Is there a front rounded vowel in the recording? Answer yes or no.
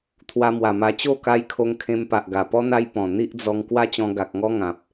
no